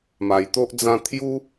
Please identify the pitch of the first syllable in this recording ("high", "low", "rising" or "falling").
low